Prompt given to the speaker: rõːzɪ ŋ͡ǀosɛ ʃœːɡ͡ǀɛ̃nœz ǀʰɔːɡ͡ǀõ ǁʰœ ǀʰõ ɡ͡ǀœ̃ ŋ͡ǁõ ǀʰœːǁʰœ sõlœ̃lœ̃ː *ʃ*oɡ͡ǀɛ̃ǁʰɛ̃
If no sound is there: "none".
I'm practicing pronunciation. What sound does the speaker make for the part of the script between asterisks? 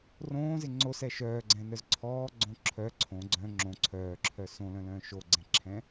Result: ʃ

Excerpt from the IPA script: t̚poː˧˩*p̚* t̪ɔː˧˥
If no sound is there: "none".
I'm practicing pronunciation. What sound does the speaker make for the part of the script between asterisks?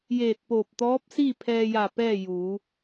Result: p̚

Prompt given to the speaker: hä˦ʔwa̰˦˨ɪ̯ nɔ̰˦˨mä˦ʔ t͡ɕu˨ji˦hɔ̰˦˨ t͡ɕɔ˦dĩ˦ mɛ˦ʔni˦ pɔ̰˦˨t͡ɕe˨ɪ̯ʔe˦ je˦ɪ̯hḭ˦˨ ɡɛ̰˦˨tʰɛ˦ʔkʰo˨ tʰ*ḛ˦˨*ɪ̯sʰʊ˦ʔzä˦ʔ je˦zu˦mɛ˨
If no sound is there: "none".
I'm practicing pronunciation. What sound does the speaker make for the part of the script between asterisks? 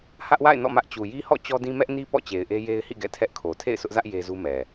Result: ḛ˦˨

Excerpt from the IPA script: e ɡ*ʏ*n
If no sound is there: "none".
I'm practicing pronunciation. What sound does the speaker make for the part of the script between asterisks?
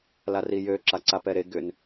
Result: ʏ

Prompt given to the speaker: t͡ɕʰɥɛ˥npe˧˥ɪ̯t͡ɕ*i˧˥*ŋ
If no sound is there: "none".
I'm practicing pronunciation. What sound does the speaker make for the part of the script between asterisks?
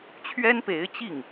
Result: i˥˩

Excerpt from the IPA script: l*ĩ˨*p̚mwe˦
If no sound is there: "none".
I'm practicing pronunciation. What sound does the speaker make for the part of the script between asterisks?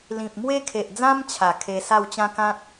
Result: ĩ˨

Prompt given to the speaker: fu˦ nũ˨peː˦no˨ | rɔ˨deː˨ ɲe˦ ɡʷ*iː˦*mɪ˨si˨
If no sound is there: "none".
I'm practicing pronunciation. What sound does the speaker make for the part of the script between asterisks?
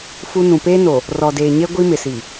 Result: i˦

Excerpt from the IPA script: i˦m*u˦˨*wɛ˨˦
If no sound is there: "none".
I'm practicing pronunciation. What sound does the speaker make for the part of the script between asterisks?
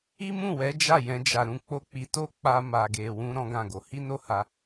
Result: ũ˦˨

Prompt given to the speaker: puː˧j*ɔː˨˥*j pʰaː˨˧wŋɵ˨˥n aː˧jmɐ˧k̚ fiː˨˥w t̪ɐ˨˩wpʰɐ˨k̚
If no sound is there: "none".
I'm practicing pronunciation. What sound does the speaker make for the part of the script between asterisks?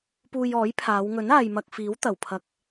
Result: ɔː˨˥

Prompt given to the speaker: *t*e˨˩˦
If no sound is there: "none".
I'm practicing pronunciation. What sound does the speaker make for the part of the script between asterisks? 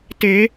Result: t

